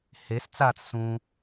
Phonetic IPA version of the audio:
hes t͡sat͡s sũ

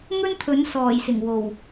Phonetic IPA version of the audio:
ŋɵ˥nt̪ʰɵ˨˥nsɔː˨˩j sɪ˨˩ŋwo˨˩w

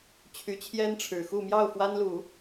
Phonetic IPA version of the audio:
t͡ɕʰy˧˥t͡ɕʰjɛ˥nʈ͡ʂʰɻ̩˨˩xu˥˧ mjɑ˥˩ʊ̯ fwa˥nlu˨˩˦

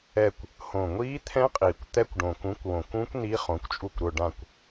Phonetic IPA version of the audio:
ɛ˨˩kʷ | hõ˨˩ŋʷiː˦˥t̪ʰɛ̃˦˥qʼiː˨˩kʷ t̪ɛ˦˥kʷɖõ˨˩ kũ˨˥kʷwõ˨˩kũ˦˥kʷ ni˦˥χõ˨˥kʷt͡ʃʼu˦˨kʷ ɾʊ˦˨ɖã˦˨kʷ

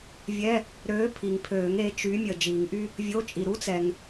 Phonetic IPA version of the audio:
vʲɛ˧˥˧ | ɾøː˨˥ pʰi˨ŋpʰøː˨˩˦ŋ e˨˥t͡ʃy˨˥ mʲəː˨d͡ʒiː˨˩˦ŋʔy˥ | vʲo˧˥˧ t͡ʃʼi˨ ɾu˥t͡sɛ˨ŋ

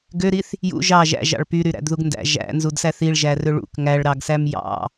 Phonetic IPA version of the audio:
ɡøɾiθ | jṵ ʒɑ ʒæ̰ʒɑ̰ɭ pyɾyɾæ̰dðuɡ ndæ̰ ʒæ̰nzudsæ θiɭʒærø ɭṵk ŋæɭɾɑɡsæm jɑ̰

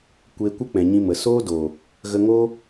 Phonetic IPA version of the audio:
kʷeː˧kʷə˦k͡pɛ̃˨ ɲĩ˧mə˨ soː˦do˨ | ɣə˧ŋo˦

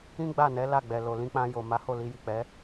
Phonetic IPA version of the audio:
ĩ˦ɡ͡ba˦˨nɛ˨˦ la˦˨ɡ͡bɛ˨lo˨ lĩ˧k͡pã˧ jo˨ma˨˦ho˦˨ li˧ji˨k͡pɛ˨˦

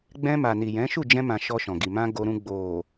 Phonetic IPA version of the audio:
ɡ͡bɛ̃˧ma˨ ni˨ jɛ̃˨˦ʃu˦˨ d͡ʒɛ̃˧mã˨ ʃɔ˧ʃɔ̃˨ɡi˨ mã˧ ɡo˧ɾũ˧ ɡ͡bo˨

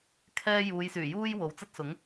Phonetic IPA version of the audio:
kʰɛː˥ juː˨˧jsyː˨˩juː˥j wo˨˥wt͡sɐ˥t̚sʊ˨˥ŋ

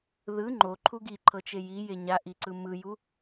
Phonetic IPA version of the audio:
ðɯ ŋ͡ǃoǃʰu ɡiǃʰɤt͡ʃe jije ɲaʔiǀɯ mɯju

